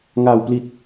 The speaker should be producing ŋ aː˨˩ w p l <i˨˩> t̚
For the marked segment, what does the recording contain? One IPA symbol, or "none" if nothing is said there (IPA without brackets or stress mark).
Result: i˨˩